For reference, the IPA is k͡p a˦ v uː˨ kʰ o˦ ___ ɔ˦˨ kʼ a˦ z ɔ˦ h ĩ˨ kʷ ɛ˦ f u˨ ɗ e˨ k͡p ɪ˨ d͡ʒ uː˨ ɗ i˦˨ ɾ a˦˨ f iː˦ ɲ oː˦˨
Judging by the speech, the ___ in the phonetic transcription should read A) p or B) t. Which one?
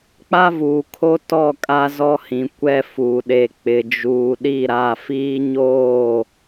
B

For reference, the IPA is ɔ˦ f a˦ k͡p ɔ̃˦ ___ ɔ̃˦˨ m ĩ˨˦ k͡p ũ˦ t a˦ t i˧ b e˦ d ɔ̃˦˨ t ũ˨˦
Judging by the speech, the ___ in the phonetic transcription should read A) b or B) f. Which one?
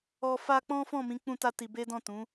B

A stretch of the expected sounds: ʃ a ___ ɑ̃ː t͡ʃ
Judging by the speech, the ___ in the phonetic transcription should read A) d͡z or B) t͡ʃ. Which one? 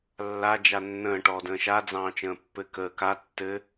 A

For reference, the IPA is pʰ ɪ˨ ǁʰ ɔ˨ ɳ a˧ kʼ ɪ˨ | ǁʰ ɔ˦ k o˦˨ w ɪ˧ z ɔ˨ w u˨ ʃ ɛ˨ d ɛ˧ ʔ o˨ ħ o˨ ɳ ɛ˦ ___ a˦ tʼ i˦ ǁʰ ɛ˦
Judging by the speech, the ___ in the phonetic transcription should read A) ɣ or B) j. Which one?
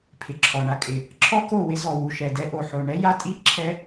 B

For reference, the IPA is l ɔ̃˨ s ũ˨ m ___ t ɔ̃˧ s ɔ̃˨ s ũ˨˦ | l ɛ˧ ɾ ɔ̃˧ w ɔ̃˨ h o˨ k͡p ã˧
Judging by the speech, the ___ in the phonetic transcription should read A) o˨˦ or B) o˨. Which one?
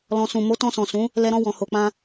A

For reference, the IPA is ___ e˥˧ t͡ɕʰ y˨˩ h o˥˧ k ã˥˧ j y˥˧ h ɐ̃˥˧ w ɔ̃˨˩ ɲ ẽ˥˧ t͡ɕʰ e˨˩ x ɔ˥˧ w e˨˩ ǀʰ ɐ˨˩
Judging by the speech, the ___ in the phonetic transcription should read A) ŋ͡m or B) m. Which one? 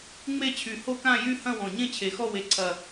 A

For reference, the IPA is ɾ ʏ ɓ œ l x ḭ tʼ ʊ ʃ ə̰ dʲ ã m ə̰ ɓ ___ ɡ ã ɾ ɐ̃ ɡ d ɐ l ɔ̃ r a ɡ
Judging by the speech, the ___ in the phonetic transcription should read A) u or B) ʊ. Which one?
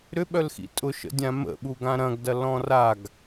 A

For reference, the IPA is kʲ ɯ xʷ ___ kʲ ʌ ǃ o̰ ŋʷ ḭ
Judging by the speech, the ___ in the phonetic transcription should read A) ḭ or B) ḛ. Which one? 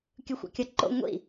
A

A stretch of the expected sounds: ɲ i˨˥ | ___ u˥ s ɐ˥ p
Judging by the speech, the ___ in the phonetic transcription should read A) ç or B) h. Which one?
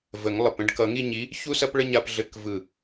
A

